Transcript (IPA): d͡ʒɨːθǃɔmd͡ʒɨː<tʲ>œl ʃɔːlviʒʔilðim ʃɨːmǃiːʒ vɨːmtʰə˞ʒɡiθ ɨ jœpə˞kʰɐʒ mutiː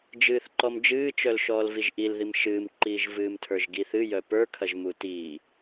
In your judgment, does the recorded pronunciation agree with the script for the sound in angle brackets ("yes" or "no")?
no